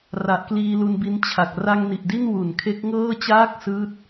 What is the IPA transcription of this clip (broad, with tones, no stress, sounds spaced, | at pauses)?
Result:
r a˨˩ ʔ k l iː˧ l u˧ n b i˧ n t͡ɕʰ a˨˩ k̚ r a˧ ŋ n i˨˩ ʔ d i˥˩ n w u˨˩ n kʰ e˦˥ k̚ ŋ ɤː˥˩ t͡ɕ aː˥˩ k̚ s ɯː˥˩ t̚